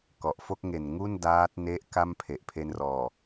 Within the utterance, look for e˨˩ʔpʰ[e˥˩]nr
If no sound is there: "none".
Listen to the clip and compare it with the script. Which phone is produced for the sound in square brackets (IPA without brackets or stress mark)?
e˧